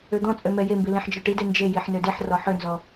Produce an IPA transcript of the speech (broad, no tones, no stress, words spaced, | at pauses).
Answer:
ød̪ɔ̃t͡sʼø mɛjembi lĩħd͡ʒɔʈide nd͡ʒejiħ nødeħrɔ ħønzɔ